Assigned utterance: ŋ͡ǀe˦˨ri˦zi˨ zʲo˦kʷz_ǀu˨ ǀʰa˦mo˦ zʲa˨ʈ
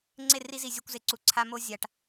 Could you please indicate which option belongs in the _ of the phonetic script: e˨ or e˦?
e˨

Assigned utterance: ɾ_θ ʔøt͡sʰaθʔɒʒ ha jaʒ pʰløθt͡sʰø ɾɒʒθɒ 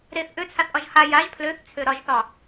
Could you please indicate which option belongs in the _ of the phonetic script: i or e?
e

